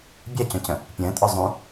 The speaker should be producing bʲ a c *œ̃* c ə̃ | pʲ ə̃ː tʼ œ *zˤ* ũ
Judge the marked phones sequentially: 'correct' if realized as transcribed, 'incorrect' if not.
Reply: correct, correct

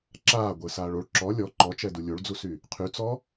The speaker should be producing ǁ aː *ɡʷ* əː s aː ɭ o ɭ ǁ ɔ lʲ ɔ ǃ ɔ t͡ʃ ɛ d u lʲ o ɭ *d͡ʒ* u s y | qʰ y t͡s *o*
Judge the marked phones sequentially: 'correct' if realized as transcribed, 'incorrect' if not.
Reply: correct, incorrect, incorrect

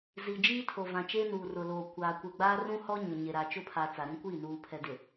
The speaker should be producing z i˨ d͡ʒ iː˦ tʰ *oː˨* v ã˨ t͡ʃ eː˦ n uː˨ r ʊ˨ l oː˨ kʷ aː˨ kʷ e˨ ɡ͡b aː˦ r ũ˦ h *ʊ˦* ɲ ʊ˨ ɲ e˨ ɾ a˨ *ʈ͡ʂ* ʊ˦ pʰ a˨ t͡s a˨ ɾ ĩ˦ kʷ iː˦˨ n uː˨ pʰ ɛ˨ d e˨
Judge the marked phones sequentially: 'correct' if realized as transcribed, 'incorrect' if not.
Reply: incorrect, incorrect, incorrect

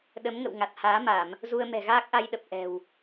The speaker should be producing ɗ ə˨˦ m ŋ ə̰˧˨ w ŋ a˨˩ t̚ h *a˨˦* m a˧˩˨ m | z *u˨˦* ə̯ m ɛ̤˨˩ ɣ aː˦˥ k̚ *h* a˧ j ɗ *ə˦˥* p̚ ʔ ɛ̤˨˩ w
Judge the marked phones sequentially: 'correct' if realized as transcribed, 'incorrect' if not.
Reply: incorrect, incorrect, incorrect, incorrect

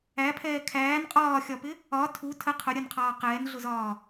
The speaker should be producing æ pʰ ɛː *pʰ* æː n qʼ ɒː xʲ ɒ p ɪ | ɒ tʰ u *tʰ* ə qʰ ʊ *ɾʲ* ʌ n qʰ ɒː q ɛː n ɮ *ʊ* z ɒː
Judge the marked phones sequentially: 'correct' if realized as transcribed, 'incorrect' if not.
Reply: incorrect, correct, correct, correct

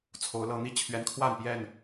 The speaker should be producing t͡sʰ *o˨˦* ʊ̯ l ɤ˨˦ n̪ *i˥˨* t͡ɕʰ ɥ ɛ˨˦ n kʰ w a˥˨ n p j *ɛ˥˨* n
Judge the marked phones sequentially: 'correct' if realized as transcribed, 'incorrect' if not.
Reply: correct, incorrect, correct

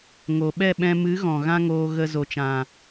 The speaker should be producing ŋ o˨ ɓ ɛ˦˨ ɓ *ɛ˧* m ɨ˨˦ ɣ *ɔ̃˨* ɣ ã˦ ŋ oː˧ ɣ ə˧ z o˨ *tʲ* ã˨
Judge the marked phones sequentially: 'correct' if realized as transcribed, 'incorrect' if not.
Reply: incorrect, correct, incorrect

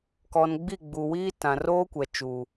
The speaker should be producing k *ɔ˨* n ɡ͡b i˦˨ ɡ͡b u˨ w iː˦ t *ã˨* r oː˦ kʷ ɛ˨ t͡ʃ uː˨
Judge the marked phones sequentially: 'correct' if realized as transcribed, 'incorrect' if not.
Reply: correct, correct

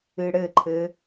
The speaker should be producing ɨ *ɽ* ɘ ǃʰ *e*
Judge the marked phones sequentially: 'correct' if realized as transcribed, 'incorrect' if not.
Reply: correct, incorrect

